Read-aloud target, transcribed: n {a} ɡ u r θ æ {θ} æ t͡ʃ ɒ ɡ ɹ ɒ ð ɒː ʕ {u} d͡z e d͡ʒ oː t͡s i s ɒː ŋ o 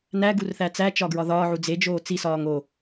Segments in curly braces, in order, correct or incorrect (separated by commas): incorrect, incorrect, correct